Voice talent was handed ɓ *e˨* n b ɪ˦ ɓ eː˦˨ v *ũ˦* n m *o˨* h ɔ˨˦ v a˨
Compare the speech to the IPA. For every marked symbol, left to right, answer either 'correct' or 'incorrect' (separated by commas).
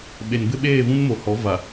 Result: correct, correct, correct